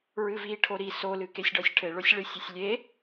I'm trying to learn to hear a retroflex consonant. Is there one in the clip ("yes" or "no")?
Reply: yes